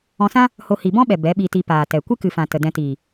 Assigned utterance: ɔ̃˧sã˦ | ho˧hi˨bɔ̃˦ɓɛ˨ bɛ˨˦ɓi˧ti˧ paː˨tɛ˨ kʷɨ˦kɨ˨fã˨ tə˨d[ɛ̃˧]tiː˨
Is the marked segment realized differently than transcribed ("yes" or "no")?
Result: no